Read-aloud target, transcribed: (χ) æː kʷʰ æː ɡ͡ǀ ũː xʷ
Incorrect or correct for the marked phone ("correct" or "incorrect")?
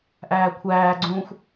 incorrect